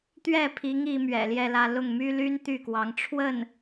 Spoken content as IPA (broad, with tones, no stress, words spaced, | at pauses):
t̪ɥɛ˥˩pʰi˧˥ŋ i˧˥mɥɛ̰˨˩ljɛ˥˧lä˥˧ lʊ˥˩ŋmy˥ly˥n t̪y˥˩kwɑ˧˥ŋ ʈ͡ʂʰwə˥˩n